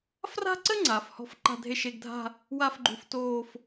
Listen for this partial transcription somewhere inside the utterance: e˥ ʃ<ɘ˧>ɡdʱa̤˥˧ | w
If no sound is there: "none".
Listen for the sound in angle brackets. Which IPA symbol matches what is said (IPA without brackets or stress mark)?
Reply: e˧